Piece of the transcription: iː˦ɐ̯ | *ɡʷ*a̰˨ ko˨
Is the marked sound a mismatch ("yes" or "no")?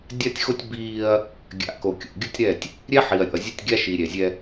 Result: yes